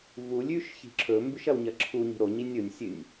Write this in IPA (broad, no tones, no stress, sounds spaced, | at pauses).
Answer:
v u lʲ ʉ ʃ ç i̤ ǁʰ ɵ m b ʉ ʃ ɐ w ɲ ɐ ǁʰ u ɲ i̤ ɾ o ɲ i nʲ o nʲ sʲ ɨ nʲ